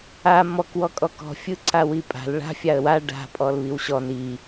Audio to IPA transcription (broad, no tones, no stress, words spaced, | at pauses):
a mɔk wɔkʼɔkɔ̤ fʲɯǀawipʼa̤l ɭa̤ fʲaə̯wa ɖa̤ pʼɔlβiwɕɔn i